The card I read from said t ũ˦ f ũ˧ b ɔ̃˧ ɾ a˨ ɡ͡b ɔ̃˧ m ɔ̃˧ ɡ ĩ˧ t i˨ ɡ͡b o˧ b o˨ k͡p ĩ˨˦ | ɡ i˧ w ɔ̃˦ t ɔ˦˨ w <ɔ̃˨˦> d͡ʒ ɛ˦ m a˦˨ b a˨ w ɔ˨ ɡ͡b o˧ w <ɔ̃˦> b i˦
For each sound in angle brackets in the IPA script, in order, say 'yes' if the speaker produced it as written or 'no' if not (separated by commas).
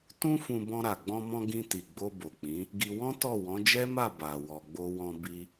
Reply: yes, no